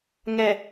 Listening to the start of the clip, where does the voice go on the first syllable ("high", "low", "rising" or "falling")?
low